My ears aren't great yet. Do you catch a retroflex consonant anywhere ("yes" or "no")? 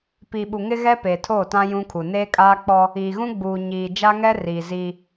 no